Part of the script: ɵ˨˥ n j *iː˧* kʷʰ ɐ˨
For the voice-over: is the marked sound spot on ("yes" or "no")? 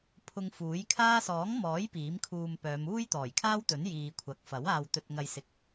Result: no